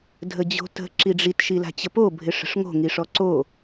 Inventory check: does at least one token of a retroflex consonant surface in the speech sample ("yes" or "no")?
yes